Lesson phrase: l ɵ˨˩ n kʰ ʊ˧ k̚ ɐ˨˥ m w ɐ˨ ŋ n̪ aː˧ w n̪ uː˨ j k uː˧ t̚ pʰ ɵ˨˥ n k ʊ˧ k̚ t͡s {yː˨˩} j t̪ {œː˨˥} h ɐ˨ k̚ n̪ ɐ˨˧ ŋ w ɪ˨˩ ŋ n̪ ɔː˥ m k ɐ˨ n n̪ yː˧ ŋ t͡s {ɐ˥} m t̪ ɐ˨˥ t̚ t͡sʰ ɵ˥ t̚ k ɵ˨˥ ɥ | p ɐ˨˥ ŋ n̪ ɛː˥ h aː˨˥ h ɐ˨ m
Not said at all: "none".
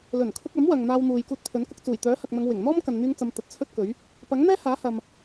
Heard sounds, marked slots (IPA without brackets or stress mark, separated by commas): uː˨˩, œː˨˥, ɐ˨˧